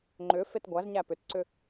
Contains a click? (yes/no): yes